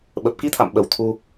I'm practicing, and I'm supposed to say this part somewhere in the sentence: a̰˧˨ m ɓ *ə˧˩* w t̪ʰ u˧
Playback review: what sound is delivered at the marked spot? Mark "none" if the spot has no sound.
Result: ə˧˩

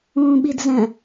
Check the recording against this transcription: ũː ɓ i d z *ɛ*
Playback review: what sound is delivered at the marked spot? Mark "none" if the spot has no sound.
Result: ɛ̃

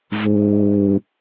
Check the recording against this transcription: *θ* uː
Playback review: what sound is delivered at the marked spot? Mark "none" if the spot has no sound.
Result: v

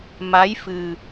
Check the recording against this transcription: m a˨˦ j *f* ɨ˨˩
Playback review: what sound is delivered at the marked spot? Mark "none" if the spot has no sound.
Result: f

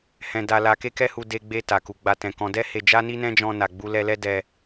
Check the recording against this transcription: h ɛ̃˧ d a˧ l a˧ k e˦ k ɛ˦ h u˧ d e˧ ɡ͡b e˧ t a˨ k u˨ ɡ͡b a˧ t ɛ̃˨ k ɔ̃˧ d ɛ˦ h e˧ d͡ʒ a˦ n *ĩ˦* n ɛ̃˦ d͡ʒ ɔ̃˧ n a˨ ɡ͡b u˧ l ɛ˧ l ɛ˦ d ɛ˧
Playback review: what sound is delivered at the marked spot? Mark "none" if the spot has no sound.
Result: i˦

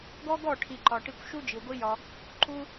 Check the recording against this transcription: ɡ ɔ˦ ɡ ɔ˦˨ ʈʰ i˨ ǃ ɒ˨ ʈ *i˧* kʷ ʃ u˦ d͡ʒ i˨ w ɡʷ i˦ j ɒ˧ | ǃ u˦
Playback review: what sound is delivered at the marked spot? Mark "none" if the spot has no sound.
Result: i˧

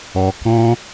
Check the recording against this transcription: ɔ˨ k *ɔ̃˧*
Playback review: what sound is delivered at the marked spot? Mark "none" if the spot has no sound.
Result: ɔ̃˧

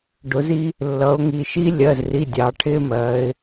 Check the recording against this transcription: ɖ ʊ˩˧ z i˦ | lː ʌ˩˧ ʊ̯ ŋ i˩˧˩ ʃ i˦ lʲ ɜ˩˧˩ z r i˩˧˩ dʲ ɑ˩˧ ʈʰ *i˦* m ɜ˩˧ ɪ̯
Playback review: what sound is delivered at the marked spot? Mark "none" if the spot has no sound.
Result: ɪ˦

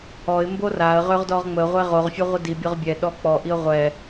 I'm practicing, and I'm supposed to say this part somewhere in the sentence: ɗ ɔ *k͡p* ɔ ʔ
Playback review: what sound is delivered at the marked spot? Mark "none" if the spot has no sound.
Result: k͡p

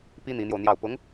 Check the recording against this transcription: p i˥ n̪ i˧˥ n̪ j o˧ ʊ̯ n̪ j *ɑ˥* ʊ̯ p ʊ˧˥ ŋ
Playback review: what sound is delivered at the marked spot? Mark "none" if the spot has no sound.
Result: ɑ˥˩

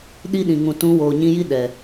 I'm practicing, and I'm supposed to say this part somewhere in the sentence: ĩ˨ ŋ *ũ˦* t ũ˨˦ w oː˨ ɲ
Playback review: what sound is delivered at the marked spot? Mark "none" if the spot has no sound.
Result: ũ˨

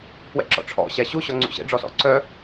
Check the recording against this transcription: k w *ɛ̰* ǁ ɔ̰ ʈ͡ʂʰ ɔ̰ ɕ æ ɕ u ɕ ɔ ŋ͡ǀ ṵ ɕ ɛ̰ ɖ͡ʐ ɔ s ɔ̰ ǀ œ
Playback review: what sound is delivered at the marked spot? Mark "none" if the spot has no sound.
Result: ɛ̰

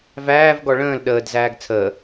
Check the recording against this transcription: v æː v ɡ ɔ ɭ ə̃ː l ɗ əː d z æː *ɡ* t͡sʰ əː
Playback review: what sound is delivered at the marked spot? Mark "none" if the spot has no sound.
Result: ɡ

